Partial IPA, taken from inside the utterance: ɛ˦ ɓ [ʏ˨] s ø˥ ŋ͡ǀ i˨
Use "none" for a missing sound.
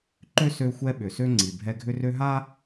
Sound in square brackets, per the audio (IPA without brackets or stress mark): ʏ˨